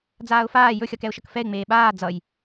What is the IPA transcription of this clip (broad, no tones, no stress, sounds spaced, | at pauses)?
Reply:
d͡z aː ʊ̯ f aː j ɵ xʲ ʌ k ɛ ʊ̯ ʃ ʌ k f ɛ ɪ̯ ŋ͡m eː ɓ aː d͡z ʌ j